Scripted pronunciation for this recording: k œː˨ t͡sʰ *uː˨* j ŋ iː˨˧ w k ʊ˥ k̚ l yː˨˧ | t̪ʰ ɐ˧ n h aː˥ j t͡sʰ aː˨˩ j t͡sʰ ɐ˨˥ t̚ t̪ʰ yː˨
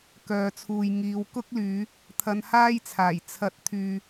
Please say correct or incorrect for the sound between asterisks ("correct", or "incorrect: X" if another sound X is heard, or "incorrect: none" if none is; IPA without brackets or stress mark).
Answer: correct